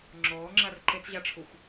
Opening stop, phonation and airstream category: click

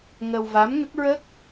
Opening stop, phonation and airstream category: plain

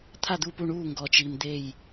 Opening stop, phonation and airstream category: aspirated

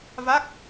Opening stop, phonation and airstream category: plain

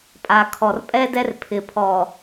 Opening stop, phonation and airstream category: ejective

